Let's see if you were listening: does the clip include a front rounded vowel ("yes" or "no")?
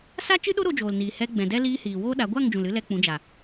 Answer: no